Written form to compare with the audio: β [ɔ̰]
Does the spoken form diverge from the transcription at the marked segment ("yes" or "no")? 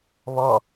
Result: yes